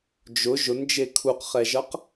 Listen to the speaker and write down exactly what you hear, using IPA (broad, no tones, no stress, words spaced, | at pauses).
d͡ʒʊ ʒʊnd͡ʒe kʰuqχɛʒʌq